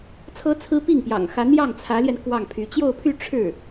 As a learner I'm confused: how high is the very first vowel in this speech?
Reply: mid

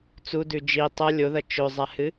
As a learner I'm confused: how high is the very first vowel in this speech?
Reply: high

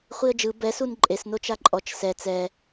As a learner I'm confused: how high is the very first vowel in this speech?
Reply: high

